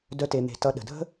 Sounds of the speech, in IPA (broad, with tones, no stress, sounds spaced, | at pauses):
d œ˨ t e˩ n̪ e̤˩ t ʌ˨ ɗ ə̤˩ dʱ ə̤˥